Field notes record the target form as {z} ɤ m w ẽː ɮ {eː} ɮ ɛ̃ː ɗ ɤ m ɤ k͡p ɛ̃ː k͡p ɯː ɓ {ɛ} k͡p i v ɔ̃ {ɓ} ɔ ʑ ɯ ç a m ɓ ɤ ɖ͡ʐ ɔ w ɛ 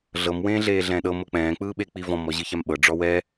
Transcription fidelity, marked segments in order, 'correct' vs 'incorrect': incorrect, correct, incorrect, incorrect

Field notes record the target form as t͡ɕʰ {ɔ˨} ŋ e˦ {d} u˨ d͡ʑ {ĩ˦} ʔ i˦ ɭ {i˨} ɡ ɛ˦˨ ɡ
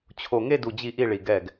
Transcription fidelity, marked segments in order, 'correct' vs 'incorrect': incorrect, correct, incorrect, correct

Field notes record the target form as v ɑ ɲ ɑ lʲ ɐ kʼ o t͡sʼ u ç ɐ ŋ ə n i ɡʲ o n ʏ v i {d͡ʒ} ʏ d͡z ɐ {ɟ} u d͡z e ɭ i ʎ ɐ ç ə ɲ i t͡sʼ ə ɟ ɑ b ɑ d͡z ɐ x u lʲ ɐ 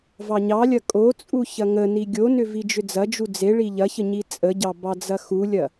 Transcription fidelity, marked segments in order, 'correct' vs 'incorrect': correct, incorrect

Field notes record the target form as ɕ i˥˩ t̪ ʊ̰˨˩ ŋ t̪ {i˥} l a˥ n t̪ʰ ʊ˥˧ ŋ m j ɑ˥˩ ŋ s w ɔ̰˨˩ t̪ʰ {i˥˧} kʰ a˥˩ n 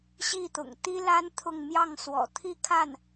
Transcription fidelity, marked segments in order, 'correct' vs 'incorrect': correct, correct

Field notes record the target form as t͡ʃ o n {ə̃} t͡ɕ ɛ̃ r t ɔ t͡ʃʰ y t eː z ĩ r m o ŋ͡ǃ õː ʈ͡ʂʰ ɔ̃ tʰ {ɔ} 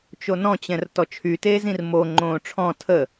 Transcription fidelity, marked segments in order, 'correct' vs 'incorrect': incorrect, incorrect

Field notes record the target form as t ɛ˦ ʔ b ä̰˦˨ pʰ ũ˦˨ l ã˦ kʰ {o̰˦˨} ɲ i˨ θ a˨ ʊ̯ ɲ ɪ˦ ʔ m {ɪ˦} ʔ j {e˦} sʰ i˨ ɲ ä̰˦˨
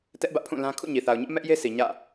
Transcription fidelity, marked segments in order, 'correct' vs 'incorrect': incorrect, incorrect, correct

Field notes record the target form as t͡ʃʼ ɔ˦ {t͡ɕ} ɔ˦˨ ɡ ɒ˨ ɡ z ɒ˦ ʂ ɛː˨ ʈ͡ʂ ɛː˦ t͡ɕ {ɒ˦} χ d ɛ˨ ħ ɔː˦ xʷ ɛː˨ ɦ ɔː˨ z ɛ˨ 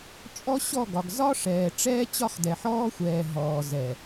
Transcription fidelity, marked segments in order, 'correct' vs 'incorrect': incorrect, correct

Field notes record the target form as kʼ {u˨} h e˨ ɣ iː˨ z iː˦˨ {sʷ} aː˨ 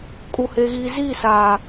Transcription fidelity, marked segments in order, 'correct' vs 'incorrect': correct, incorrect

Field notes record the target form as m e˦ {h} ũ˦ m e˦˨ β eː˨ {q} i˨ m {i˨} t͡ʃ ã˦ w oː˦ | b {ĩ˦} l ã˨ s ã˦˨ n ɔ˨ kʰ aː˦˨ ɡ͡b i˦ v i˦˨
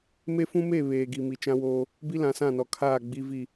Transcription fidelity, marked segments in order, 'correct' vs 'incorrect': incorrect, incorrect, correct, incorrect

